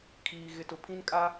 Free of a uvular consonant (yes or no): yes